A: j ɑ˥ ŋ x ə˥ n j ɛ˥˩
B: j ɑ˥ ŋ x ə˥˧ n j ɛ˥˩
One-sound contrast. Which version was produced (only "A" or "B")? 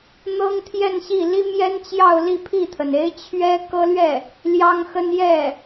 A